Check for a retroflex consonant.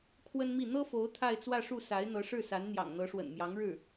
present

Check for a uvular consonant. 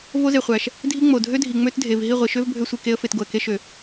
present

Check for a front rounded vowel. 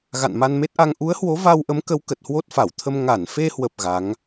absent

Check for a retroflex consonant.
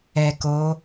absent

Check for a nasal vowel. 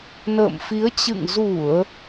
absent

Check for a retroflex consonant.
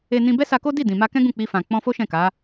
absent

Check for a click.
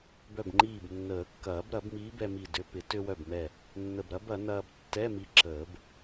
present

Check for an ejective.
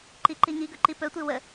absent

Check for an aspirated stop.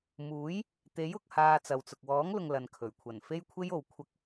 present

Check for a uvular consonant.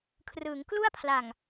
absent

